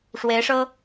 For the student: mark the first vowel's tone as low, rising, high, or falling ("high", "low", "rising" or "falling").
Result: rising